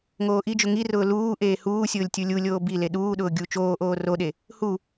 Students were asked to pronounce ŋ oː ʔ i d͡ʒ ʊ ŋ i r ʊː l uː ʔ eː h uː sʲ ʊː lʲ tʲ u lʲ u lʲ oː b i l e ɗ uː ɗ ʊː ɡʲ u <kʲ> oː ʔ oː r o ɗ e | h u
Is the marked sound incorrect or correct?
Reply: incorrect